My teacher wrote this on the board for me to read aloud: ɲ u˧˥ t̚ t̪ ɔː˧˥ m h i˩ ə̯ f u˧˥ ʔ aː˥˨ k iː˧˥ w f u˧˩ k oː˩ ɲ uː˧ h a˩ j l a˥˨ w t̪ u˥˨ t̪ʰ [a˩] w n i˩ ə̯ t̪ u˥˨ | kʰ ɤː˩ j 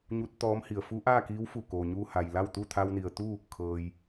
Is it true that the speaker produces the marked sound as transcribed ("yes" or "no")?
no